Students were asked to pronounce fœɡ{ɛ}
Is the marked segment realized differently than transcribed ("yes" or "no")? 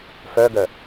yes